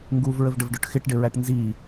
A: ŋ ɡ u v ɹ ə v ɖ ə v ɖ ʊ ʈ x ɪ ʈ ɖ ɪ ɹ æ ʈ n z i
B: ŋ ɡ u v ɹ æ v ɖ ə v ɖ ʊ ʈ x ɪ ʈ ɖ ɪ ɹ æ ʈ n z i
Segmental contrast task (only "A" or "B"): A